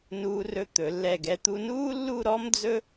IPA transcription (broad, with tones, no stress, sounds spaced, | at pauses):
n uː˧ r ɵ˧ t̪ ɵ˩˧ lː ɛ˧˩ ɡ ɛ˧ t̪ u˧ n uː˥ lː u˥˧ ɾ ɔ˥ m d͡z ɵ˥